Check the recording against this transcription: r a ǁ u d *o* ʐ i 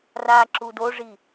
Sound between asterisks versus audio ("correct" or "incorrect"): correct